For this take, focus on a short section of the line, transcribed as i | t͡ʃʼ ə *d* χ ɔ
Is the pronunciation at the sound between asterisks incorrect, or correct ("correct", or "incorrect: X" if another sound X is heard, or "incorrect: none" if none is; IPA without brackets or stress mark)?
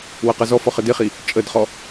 correct